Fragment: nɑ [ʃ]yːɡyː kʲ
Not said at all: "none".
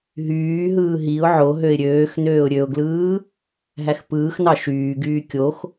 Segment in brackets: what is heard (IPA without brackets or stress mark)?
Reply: ʃ